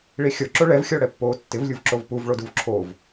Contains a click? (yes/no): yes